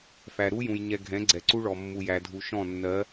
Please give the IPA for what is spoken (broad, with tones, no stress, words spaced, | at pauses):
fæ˨ɾu˦jũ˨j ɲɛ˨ ɡʱɛ̃˨˦ɡ͡ǀɛ˨ǀu˦ɭɔ˨ mːu˨jæ˨dʱu˨ ʃɔ̃˦˨nːɜ˨˦